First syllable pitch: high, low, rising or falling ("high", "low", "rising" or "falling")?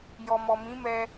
low